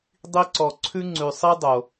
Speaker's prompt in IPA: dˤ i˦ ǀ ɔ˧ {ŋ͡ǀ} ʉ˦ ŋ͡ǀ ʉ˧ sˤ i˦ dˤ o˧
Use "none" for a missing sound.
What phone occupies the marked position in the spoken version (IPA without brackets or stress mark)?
ǀʰ